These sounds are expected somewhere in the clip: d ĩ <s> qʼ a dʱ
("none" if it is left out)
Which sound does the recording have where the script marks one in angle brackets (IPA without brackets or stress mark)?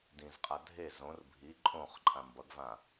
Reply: z